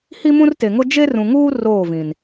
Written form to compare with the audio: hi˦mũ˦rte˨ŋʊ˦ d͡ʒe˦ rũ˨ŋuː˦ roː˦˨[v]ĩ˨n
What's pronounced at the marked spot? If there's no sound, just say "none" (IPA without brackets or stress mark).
v